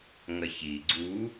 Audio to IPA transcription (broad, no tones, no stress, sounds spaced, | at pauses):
ŋ ɐ ç i ɡ͡ǀ u